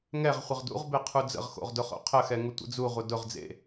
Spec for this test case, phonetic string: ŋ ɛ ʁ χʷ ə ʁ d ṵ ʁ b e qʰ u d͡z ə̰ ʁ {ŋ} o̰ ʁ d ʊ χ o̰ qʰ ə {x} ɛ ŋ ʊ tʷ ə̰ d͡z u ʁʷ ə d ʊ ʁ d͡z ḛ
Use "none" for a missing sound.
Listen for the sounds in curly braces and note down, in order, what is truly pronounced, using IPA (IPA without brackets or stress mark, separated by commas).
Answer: x, x